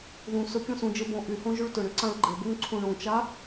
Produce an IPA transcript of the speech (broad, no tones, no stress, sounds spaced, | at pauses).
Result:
ð ũ s ɵ kʲ õ s ũ d͡ʒ ɘ b õ ʔ y h õ ʒ y ɭ t ɵ ɳ ʏ ǀ ã ɭ ɡ͡ǃ ɘ b o ŋ ǀʰ ũ ɳ ũ t͡ʃ a